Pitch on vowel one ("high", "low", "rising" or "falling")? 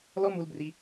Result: high